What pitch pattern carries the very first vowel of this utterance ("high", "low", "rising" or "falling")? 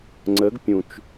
rising